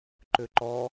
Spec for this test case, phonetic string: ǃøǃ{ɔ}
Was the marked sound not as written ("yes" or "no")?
no